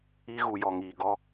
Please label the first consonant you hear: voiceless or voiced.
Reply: voiced